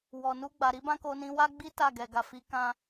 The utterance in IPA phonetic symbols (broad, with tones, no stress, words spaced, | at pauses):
wɔ˨ nu˧ɡ͡ba˨ɾi˨˦ bã˦ko˧nĩ˧ wa˦ɡ͡bi˦ ta˦˨ɡɛ˨ɡa˨fi˨˦ kã˧